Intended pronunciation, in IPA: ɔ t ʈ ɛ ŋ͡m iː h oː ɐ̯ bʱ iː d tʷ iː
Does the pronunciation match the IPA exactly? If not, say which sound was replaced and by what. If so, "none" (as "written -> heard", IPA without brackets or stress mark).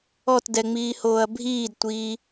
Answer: ʈ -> d